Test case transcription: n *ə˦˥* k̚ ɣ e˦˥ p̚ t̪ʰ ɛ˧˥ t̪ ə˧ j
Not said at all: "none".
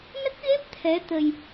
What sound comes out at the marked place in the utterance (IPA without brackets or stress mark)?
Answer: ə˦˥